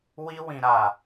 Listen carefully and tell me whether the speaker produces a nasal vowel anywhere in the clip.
yes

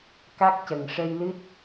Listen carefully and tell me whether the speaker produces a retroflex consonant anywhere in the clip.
yes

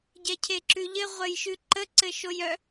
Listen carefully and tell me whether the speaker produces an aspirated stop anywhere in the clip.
yes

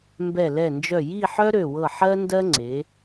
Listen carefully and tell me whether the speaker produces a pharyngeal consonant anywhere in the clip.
yes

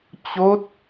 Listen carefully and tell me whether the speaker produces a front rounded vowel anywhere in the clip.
no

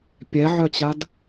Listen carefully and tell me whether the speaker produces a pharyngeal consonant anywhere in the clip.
yes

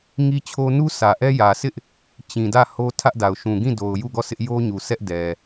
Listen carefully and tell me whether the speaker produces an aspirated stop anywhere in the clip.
yes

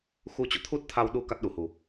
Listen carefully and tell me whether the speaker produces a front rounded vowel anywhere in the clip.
no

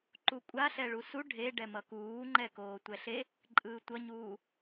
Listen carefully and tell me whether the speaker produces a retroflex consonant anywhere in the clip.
yes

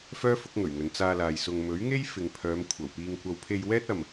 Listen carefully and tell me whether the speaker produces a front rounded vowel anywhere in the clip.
yes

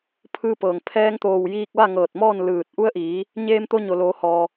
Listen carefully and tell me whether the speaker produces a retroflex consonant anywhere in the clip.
no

